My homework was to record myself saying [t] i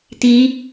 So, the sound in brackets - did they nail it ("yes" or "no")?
yes